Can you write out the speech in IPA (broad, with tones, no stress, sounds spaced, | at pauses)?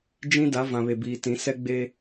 d͡ʒ ĩ˦ d a˨˦ v ã˨ β e˨ b iː˨ t ĩ˨˦ s ɛ˦ ɡ͡b e˦